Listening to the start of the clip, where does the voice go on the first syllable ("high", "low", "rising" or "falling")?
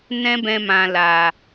high